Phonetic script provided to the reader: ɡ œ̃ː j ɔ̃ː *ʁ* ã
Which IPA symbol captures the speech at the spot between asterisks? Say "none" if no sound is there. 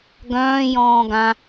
ɡ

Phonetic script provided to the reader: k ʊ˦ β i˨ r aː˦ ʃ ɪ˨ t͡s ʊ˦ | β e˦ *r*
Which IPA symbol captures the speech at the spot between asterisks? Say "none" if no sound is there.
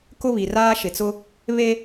none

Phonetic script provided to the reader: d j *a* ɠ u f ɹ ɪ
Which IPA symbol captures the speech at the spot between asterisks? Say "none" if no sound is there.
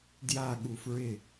a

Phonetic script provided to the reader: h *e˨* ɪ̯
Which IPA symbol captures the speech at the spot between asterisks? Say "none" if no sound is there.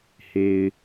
e˨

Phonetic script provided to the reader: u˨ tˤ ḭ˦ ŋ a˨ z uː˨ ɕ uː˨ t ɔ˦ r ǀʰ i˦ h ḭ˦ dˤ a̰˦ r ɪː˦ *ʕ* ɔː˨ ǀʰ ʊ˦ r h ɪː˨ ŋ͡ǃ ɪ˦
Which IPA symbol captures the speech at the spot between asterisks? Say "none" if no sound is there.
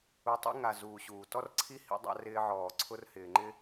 ʕ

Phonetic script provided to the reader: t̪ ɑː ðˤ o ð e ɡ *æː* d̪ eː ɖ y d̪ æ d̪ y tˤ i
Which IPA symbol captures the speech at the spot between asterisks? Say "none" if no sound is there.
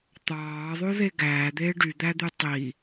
æː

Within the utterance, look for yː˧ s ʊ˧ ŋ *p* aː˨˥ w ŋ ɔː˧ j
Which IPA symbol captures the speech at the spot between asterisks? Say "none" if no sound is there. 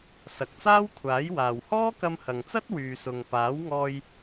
p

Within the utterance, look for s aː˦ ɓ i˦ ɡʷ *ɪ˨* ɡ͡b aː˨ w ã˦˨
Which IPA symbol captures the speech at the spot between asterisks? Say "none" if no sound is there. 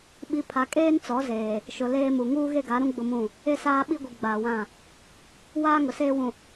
i˨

